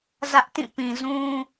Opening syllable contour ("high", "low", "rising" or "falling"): high